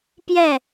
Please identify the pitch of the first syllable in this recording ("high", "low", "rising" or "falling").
falling